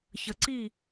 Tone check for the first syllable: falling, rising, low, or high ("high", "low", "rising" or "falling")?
low